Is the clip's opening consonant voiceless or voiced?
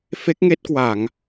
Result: voiceless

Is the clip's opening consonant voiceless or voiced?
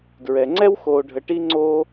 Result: voiced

